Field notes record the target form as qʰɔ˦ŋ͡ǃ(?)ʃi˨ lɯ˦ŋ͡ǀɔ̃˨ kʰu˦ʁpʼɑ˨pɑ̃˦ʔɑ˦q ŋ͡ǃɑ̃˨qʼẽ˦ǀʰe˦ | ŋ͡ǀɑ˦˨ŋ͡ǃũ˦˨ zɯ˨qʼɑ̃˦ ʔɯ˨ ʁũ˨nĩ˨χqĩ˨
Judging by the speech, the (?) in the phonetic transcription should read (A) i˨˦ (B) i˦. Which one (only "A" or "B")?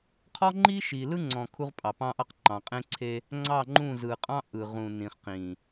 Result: B